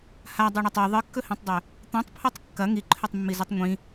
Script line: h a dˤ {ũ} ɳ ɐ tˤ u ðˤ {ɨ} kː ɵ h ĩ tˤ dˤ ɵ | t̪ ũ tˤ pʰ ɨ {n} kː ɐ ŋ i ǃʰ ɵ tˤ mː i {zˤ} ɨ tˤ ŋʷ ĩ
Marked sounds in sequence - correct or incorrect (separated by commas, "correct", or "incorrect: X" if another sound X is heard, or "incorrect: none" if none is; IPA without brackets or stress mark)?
incorrect: u, correct, incorrect: tˤ, incorrect: z